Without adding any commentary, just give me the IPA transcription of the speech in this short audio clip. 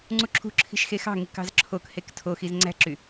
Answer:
ŋ͡ǀuǁʰṳǁʰi̤ʃ xexɑ̤ŋi kɑ̤zǁʰokhek tʰoxiz ŋ͡ǀæ̤ǁy

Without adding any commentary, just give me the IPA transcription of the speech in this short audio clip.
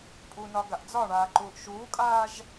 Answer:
pʼunɒɡaʔ d͡zɒɳaːǃuːʔ ʃuːkʼaːʒ

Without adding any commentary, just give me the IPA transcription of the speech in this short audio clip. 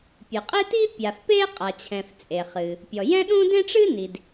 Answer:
pʲɨ˩qʼe˥ti˥ pʲa˩fpe˥ qʼa˩t͡ɕʰɛ̃˩f t͡sʼe˩χɨ˩ | pʲɔ˩jɛ̃˥ɗũ˥ dẽ˥ʈ͡ʂɨ˥ni˩d

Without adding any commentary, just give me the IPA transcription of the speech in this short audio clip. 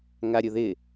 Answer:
ŋaɾʲʊðɪ

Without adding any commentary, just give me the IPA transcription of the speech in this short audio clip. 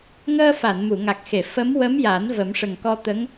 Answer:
ŋəː˧fa˨˩˨n mu˨˩˨ŋa˨˩k̚xe˨˩˨ fə˧˥m wə˧˥m ja˨˩˦n və˨˩˦mʂə˨˩ŋkɔ˧ t̪ə˧˥ŋ

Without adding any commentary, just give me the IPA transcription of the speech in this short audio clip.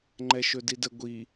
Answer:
ŋ͡ǃɛʃɵdidə ɡʷi

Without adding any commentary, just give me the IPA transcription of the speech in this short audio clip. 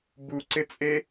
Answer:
buǀɪt͡sʼe

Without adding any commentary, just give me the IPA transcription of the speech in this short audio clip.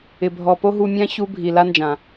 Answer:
ɪ˨ bʱɔ˨ po˦ɦu˧mʲã˦ çu˧ bʱi˨la˧nd͡ʒã˨

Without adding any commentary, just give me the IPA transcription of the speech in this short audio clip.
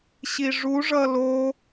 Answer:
ɕiʐuʐʌ lo

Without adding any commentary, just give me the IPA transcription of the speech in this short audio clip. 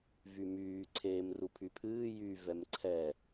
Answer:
vymyː ǀʰeːmrupʰypʰɨː jy vɛmǀʰɛ

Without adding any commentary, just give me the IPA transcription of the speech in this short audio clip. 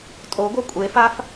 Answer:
tʼoɡʷœ kʷʼefaf

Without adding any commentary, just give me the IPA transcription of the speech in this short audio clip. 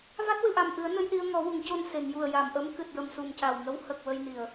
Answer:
va˦˥t̚wɨ˨˩˨ʔa˨˩mʔɨ˨˩˦ə̯ nə˧j ɗi˧ə̯ŋɔ˨˩˦ wu˨˩˨ŋco˧n se˨˩˨ŋju˨˩ə̯ ja˨˩˨mʔə˧˥m kɨ˨˩t̚jə˨˩msu˨˩m ca˨˩wŋə˧˥w hə˨˩k̚ wə˧jni˨˩˨ə̯

